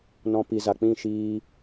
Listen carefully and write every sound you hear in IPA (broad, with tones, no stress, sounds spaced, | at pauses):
n ɔ̃˧ p i˨ z a˨ k͡p ĩ˦˨ ʃ iː˧